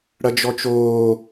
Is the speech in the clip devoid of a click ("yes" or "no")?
yes